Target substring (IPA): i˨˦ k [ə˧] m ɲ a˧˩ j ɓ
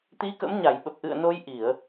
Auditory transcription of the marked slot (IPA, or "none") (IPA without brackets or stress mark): ə̰˧˥